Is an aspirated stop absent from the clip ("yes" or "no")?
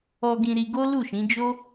yes